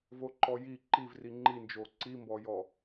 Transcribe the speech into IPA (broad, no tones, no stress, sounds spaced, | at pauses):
v o ǃ ɔ j i ǃ i v r i ŋ͡ǃ i n d͡ʒ o ǀ i m b ɔ j ɔ